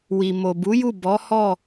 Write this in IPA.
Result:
wi˨mo˨bu˨˦ju˦˨ bɔ˨˦hɔ˦˨

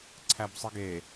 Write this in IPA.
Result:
ǀʰæbsˤɯɡe

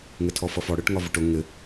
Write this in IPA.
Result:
ŋɪtʰɔfʌfɔ ɽɜʈŋɒvʊʈʊ ŋɪ

